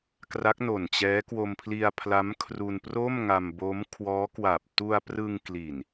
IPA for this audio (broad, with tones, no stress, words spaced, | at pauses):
kra˦˥k̚no˨˩nt͡ɕɛː˦˥ kwo˧mpʰli˧a̯pʰla˦˥m kʰru˧npro˥˩m ŋa˧mbo˦˥m kʰwɔː˦˥kwa˨˩p̚ tu˧a̯prɯ˧ŋ kli˨˩n